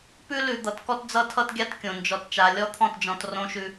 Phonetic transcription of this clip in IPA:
p ʉ˦ l ʉ˨ d̪ ʌ˨ t k ɔ˦ t d͡z ʌ˦ tʰ ʌ˦ t ɡʲ a˦ t kʲ õ˨ n d͡ʒ ɔ˨ t t͡ʃ a˨ lʲ ɔ˦ t̪ʰ ɔ̃˦˨ t d͡ʒ ɔ̃˨ t r õ˦ ʃ ʉ˦

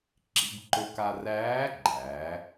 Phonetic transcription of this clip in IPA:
ǁ ḭ˩˧ b ǃ ɵ˧ k a˧ r æː˧˥ ɡ͡ǃ æː˩˧

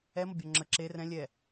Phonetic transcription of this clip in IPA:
ɛ m ʌ bʲ ɔ ŋ͡ǁ ə ǁ e r ɛ̃ lʲ ɛ

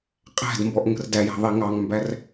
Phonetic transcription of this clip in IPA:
qʼ æ̤ d m b ɔ ʔ ŋ ə̤ r d æ j æ̤ ðˤ i ŋ ɑ ŋ m b æ r

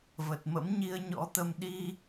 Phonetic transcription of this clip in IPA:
v ə˨˩ t̚ m ə̰˧˥ m ɲ i˧ ə̯ ɲ ɔ̰˧˥ t̪ ə˧ m ɗ i˧

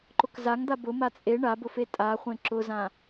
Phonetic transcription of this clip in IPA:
ǃ ʊ k z a ŋ d̪ a b ʊ m a t͡sʼ e ɳ a b ʊ f e tʼ a χʷ ẽ ǁ ʊ z ã

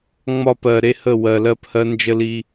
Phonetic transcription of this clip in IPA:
ŋ͡m ɒ˦˨ p ɜ˨ ɾ e˦ h ə˦˨ w ɜ˨ l ɜ˦ p h ɜ˦ n d͡ʒ ə˦ l i˦

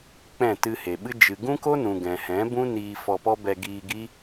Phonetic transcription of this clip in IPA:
k͡p ɛ̃˦˨ t ɨ˧ h e˨ ɓ ɨ˦ d͡ʒ ɨ˨ ɡ ũ˦ k o˦ n ũ˨ ɡ ɛ̃˨ h ɛ̃˨˦ b ũ˦ n iː˧ f ɔ˧ p ɔ˦ b ɛ˧ ɡ iː˧ ɡ i˦

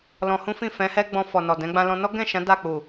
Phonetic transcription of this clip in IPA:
l ɔ̃˧ h ũ˦ f ĩ˦˨ f ɛ̃˨˦ h ɛ˦ ɡ͡b ɔ̃˧ f ɔ˨ n ɔ˨ d ɛ̃˨˦ ɡ͡b ã˧ l ɔ̃˧ n ɔ˦ ɡ ɛ̃˦˨ ʃ ã˨˦ d a˦˨ k͡p u˨

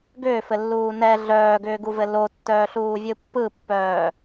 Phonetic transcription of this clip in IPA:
ɡ ʏː f ɘ lː uː n ɛ ɮ œː ɡ ʏː ɡ u v ɘ l o tː œː ɬ uː vʲ ɯ pː ɯ pː œː

